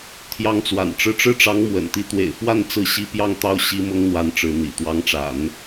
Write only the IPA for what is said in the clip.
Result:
t̪ʰ j ɑ˧˥ ŋ t͡s w a̰˨˩ n ʈ͡ʂ ɻ̩˥˧ ʈ͡ʂ ɻ̩˥˩ ʈ͡ʂ ɑ˧˥ ŋ m w ə̰˨˩ n t̪ i˧˥ t̪ w ḛ˨˩ ɪ̯ f w a˥˧ n t͡s ɹ̩˥˩ ɕ i˥ p j ɑ˥˧ ŋ t̪ ɑ˥˩ ʊ̯ ɕ i˥ m ʊ˥ ŋ n̪ w a˧˥ n ʈ͡ʂ ɻ̩˧˥ n̪ ḭ˨˩ t̪ w ɑ˧˥ ŋ ʈ͡ʂ a̰˨˩˦ n

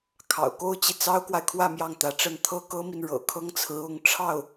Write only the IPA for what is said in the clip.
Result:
kʰ ɑ̰˨˩ ʊ̯ k o˥ ʊ̯ t͡ɕ i˨ t͡s ɑ˥ ʊ̯ k w a˨ ɪ̯ kʰ w ä˥˧ m j ɑ˥˩ ŋ t̪ ä˧˥ ʈ͡ʂ ə˥˩ n t̪ʰ ɤ˥ k ɤ˥ m i˨ n ɻ ɤ̰˨˩ kʰ ɤ˥ ŋ t͡sʰ ɹ̩˧˥ ʊ˧˥ ŋ ʈ͡ʂʰ ɑ˥˩ ʊ̯

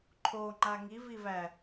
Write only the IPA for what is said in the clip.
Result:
ǃʰ o ŋ͡ǃ a ŋ i v i v æ

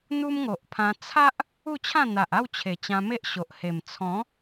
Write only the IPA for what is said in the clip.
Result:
n̪ u˦ m ŋ o˨ ʔ pʰ ã˧ t͡sʰ a˦ ʔ | u˥˧ t͡ɕʰ ã˥˧ n̪ a˨ ʔ a˥˧ w t͡ɕʰ e˨˩ t͡ɕ ã˧ m e˦ ʔ ɕ o˨ ʔ h e˨˩ m t͡sʰ ɔ̃˨˦

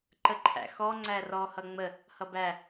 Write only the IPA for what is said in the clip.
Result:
ǃ ə ǃʰ æ̰ x ɔ ŋ͡ǀ æ r ɔ h ʌ ŋ͡m ə | h ʌ b æ

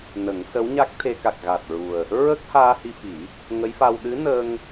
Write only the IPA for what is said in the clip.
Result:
n ə˨˩˦ ŋ s ə˧˥ w ɲ a˦˥ k̚ t̪ʰ e˧ k a˨˩ k̚ ɣ a˨˩ t̚ ɹ u˨˩ ə̯ | ɹ ə˦˥ k̚ h aː˧ h i˧ f i˨˩˦ | ŋ ə˧˥ j f a˧ w ɗ ɨ˧˥ n ə˧ ŋ

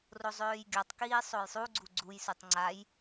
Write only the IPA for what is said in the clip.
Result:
r o zˤ øː j ɡʲ ɔ tˤ k iː sˤ o j sˤ u ɡ͡ǀ u ɡ͡ǀ u j s u tˤ ŋ͡ǀ a j

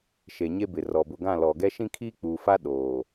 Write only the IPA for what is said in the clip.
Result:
ʃ e˨ ɲ e˦ b ɪ˨ r ɔ˨ b ʊ˨ ɡ ã˦˨ l ɔ˨ ɡ ɛ˦ ʃ ĩ˦ kʰ iː˦ k͡p uː˨ f a˦ ɗ oː˨

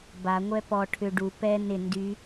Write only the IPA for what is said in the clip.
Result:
b a ŋʷ ɛ p ɔ ʈʰ ʏ ɖ u p ɛ n ɪ n d y

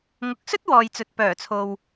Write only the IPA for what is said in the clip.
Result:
ŋ ʊ˨˥ k̚ s ɵ˥ t̚ w ɔː˨ j t͡s ɵ˨ t̚ p œː˨˩ t͡sʰ o˨ w

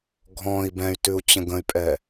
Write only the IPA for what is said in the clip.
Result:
ɡʱ ɔ̃ i̯ b ɛ̃ y̯ t ʉ u̯ t͡ɕ ə̃ ɡ ə̃ y̯ pʼ ɛ

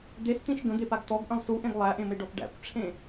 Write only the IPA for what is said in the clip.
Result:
d̪ e s t̪ ĩ ʃ ɡ ə̃ d̪ e p a ɡ t̪ ɔ ɡ ʔ ə̃ lˠ s u ʔ ẽ ɡ lˠ æ ʔ ẽ m e ɖ ɔ p ɖ æ̰ kʷ ʈ͡ʂʰ ẽ

